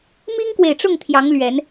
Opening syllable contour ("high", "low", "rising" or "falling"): high